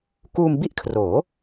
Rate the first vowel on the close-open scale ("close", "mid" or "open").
close